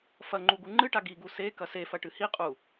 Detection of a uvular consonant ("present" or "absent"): present